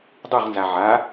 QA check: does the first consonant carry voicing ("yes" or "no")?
yes